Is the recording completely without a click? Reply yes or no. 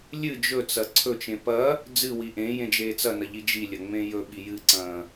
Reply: no